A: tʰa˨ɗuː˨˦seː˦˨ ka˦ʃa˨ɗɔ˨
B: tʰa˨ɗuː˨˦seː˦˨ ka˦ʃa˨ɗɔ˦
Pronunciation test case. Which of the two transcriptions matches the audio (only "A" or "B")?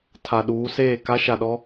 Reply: B